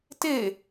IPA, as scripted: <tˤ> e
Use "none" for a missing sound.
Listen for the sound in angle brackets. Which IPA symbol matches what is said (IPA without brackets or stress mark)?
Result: t